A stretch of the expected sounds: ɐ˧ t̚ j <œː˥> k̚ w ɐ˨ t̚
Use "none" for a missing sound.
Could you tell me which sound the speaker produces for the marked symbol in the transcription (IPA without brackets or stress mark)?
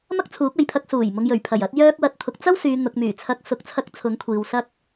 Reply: œː˧